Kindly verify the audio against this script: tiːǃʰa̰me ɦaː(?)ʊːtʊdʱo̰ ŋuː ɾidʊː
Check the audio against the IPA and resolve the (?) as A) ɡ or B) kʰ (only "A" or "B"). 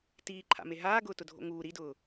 A